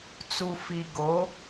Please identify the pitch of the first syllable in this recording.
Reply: low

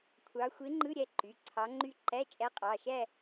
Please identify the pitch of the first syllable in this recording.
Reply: rising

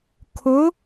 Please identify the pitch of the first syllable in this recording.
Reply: rising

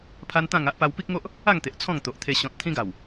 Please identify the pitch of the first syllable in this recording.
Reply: high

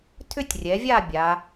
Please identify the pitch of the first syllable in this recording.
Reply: high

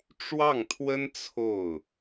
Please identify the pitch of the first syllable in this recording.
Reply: falling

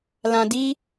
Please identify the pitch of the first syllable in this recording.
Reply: low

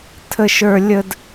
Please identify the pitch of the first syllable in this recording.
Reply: high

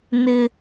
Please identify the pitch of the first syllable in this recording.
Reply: high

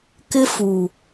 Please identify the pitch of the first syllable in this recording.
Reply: high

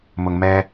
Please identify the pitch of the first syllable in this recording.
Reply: low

